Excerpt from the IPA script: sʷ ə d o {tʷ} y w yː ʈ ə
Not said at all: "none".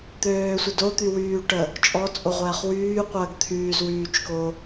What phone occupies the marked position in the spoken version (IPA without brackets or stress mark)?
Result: t̪